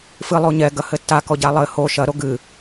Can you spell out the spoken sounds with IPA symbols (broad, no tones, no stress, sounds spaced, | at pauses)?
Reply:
f ɨ lˠ o ɲ ɛ ɡ ɐ h ɘ tː a k ɔ ɟ a lˠ ɘ h o ʃ ɐ ɾ o ɡ ɨ